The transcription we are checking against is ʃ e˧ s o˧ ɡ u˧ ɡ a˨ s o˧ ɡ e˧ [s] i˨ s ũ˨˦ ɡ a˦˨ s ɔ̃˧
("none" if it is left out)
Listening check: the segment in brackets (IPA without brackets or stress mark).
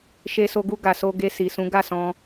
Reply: s